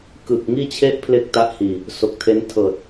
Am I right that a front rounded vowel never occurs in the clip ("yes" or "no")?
yes